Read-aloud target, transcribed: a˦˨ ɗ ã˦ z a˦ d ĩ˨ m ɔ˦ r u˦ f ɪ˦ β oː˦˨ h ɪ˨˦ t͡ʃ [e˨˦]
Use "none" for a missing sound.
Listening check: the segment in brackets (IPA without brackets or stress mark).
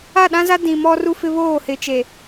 e˨